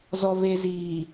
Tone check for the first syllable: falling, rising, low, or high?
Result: low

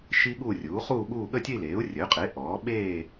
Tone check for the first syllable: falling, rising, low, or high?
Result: high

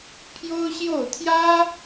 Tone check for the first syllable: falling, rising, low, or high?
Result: high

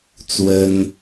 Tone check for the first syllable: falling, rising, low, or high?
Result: high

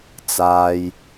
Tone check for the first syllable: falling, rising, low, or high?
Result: low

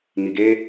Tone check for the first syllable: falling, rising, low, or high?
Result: low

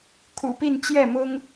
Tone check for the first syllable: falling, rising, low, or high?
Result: low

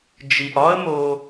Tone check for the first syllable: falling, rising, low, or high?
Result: low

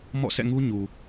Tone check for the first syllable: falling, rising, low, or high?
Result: falling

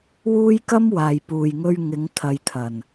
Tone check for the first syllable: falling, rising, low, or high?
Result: high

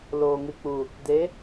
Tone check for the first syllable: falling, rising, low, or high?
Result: low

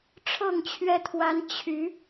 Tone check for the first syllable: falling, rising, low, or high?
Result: falling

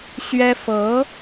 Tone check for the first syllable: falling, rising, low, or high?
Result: high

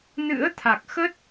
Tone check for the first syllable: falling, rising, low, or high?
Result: rising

